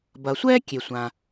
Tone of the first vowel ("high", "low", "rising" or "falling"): low